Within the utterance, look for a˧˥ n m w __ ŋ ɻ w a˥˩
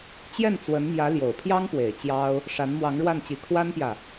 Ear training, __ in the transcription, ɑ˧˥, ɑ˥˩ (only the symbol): ɑ˧˥